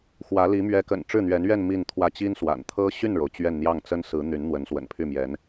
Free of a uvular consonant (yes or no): yes